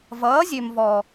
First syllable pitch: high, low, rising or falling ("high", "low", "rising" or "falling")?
rising